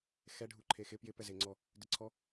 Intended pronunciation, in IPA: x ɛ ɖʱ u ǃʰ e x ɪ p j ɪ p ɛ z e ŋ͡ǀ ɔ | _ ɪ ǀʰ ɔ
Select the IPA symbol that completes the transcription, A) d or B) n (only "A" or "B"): A